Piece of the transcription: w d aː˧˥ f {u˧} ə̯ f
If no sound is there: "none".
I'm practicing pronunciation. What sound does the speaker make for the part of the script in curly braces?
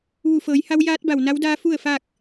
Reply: u˥˨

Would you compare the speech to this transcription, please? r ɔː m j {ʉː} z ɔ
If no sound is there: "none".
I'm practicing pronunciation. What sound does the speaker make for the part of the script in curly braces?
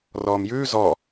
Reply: ʉː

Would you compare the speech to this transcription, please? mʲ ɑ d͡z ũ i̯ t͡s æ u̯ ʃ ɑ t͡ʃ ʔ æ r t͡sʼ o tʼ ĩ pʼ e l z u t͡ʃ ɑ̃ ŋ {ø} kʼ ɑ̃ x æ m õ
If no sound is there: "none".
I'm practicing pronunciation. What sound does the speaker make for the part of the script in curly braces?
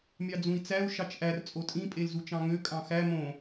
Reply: ø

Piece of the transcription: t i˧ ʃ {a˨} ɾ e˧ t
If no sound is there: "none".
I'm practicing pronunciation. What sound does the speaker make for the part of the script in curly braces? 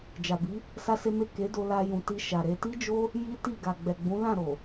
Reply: a˨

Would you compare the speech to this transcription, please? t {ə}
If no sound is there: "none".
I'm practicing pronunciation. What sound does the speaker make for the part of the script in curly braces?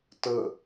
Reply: ə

